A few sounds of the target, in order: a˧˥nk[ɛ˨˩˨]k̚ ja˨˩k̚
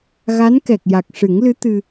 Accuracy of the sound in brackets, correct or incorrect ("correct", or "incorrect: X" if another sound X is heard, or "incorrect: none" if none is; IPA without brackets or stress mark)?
incorrect: ɛ˨˩